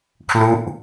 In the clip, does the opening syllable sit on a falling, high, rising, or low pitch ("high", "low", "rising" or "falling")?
falling